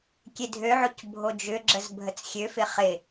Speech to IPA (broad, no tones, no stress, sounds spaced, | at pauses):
kʲ e dʱ ø ʕ o c bʱ o d͡ʒ ʏ ɡ͡ǁ ə z bʱ ə t͡s xʲ ø f ɪ χ ɪ